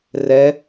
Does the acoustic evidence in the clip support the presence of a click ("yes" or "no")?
no